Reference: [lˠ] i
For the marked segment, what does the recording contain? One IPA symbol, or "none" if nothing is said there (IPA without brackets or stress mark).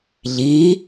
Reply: ʎ